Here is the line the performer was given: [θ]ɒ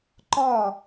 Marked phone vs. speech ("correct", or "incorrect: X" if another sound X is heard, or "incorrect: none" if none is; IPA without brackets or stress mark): incorrect: ǃ